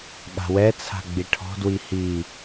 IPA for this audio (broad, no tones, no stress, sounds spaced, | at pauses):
ɠ a̤ w ɛ t͡sʰ a̤ ɡ͡b i ʈʰ ɔ̤ d w i h i